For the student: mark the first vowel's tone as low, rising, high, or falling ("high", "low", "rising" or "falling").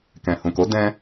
low